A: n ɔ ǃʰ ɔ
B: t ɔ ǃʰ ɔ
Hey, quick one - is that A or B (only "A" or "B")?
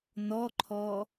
A